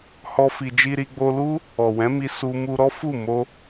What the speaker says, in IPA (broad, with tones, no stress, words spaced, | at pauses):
hɔ˦fi˧ d͡ʒi˧ɾi˧ɡ͡bo˧lu˦ | ɔ˨wɛ̃˨˦mi˧ su˧ mu˧ɾɔ˦fu˦˨ mo˧